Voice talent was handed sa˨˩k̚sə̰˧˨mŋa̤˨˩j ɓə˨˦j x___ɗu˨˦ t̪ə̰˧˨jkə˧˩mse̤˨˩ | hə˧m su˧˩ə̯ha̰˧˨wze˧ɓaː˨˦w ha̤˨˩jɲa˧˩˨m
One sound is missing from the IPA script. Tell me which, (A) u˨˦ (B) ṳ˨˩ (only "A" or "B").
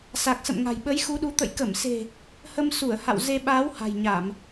A